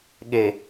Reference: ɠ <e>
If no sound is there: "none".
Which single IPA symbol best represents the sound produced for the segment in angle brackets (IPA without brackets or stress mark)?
e